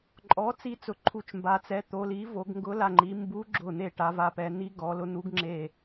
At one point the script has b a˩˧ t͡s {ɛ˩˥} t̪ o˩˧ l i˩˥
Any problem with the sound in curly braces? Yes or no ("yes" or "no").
no